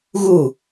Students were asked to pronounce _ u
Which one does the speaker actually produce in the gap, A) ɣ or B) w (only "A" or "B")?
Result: A